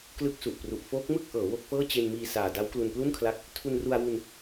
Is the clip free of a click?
yes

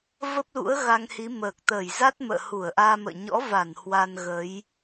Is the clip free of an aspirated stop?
yes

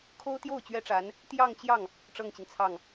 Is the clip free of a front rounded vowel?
yes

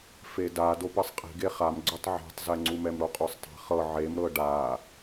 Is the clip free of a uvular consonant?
no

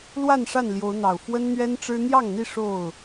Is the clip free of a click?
yes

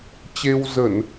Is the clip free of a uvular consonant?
yes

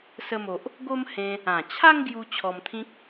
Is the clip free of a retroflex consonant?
yes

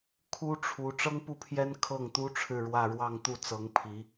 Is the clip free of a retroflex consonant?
no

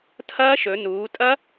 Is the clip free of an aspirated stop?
no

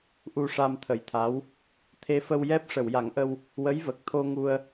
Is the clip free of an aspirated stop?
no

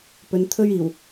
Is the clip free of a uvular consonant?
yes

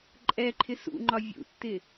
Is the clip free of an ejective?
no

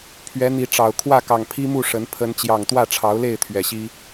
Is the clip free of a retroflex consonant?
no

